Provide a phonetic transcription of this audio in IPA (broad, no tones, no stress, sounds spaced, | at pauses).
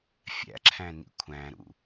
fʲ æ̰ ǁʰ æ̃ n ḭ kʷʰ æ̃ ɾ ṵ